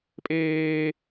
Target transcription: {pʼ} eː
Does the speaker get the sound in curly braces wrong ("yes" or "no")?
no